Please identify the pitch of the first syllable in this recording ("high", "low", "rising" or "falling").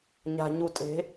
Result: low